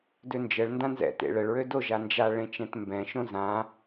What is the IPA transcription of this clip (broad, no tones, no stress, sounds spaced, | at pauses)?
d ø n d͡ʒ ə ɭ n d ã n z ɛ̰ t ḛ ɭ ə ɭ ɹ ø d o ʒ a n d͡ʒ a ɭ ẽ t͡ʃ ɛ̃ t m b ɛ̃ ʃ õ z ã